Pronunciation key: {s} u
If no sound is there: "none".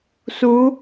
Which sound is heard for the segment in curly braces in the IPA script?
s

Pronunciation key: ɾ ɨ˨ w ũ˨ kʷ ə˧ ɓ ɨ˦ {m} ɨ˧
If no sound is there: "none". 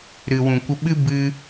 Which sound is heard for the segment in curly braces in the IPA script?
b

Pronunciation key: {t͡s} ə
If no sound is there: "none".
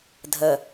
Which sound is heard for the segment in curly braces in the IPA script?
dʱ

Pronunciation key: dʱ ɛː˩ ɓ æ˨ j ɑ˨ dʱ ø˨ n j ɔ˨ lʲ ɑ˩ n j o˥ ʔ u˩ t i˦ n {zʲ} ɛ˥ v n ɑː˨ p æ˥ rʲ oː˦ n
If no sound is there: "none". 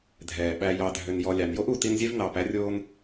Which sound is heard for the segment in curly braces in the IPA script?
zʲ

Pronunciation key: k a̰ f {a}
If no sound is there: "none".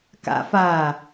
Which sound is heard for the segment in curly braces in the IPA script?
aː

